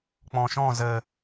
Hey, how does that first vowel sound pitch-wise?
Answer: low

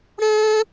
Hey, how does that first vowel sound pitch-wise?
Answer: high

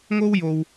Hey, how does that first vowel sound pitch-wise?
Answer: high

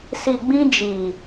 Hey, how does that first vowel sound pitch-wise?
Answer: low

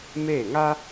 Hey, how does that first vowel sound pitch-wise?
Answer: falling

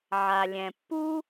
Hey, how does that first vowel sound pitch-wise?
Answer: low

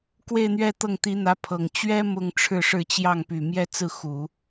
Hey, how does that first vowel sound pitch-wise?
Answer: falling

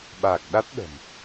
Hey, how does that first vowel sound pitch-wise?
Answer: low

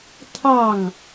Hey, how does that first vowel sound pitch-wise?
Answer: falling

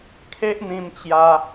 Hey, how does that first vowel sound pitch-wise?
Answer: high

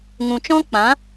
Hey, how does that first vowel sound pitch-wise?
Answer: low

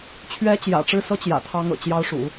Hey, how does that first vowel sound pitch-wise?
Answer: rising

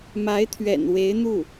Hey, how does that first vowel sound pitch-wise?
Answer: rising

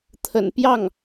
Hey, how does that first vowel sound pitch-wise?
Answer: low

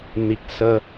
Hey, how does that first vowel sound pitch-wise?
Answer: low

